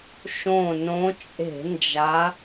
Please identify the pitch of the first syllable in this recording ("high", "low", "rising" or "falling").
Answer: low